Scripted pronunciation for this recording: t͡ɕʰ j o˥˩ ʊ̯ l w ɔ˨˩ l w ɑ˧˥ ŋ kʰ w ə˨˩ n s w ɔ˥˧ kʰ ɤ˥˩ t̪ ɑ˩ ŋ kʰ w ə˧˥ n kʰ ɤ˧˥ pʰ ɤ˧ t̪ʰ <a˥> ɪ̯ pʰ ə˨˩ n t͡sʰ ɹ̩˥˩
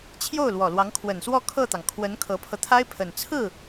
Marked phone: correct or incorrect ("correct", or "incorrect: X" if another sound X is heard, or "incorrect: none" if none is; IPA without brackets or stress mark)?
correct